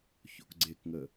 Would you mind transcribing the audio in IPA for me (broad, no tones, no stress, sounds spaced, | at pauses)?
ç o̰ k ɡ͡ǀ e k ŋ ə